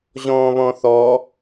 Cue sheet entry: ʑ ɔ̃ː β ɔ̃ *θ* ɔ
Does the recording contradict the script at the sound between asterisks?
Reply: no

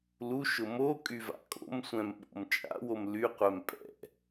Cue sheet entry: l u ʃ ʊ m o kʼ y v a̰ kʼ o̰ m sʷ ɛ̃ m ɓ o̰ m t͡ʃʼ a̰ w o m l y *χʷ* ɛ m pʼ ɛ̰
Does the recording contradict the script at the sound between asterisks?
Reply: yes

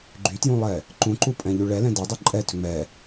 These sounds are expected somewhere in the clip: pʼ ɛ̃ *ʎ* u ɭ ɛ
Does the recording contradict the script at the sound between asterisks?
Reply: no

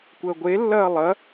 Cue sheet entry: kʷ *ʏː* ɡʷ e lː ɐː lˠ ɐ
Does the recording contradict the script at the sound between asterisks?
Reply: yes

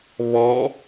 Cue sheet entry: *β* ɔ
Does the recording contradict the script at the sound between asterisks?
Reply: no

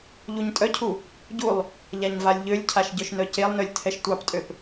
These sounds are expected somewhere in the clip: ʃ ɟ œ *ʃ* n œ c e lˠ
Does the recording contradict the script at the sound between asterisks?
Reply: no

